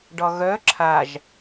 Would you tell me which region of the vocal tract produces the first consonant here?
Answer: retroflex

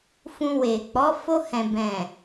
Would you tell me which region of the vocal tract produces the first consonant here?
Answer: lips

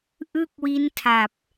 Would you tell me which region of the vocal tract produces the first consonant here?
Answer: throat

